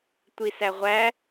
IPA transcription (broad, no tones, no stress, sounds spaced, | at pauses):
tʷ i s æ ʁʷ æ